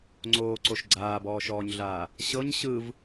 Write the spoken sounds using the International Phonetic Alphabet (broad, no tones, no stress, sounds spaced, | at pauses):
ŋ͡ǀ oː ǀ o ʃ ɡ͡ǀ aː b ɔː ʃ ɔː ɲ ɮ aː | ɕ ɤ ɲ ɕ ɯ v